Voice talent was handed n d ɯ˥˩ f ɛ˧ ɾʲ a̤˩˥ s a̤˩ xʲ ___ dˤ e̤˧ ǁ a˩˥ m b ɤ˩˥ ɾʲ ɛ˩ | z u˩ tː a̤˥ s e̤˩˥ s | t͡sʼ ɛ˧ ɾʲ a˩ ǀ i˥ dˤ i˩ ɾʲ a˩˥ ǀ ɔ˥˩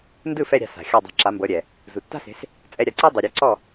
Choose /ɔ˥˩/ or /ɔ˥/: ɔ˥˩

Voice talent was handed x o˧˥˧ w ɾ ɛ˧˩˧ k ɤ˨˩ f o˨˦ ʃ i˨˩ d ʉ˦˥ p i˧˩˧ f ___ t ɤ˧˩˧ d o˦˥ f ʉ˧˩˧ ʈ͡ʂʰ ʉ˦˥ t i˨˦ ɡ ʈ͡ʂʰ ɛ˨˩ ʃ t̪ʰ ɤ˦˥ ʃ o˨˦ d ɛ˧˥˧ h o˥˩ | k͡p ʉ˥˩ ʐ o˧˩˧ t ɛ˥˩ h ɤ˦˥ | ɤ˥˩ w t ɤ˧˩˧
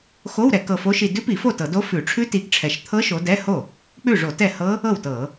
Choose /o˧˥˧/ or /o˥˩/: o˥˩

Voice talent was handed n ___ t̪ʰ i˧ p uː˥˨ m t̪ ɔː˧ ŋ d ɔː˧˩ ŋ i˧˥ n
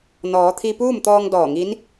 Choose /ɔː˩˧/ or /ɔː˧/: ɔː˩˧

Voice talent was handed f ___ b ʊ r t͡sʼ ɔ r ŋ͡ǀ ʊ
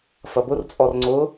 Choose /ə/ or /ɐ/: ɐ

